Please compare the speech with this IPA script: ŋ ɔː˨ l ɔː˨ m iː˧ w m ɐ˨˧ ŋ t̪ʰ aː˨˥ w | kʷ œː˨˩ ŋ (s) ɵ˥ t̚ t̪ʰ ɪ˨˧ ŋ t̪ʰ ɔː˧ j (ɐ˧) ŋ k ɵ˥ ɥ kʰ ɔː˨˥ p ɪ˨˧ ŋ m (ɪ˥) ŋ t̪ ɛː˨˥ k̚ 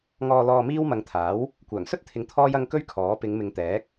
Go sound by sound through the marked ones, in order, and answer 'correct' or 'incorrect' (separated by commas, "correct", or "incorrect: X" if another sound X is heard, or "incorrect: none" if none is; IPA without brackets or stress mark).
correct, correct, incorrect: ɪ˨˧